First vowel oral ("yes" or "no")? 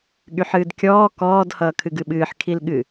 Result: yes